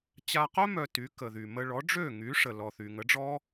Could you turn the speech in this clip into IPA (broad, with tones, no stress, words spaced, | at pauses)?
t͡ɕa˧qœ˥ mœ˧ty˩˥ kə˩ðy˩mə˧ ɭɔ˩˥ɖ͡ʐø˥˩ŋy˩˥ ʂə˩ lɔ˩θy˩ ŋə˩˥ɖ͡ʐɔ˥